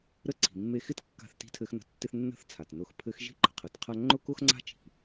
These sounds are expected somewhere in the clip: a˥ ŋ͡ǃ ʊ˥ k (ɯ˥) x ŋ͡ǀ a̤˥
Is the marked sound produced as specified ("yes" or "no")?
no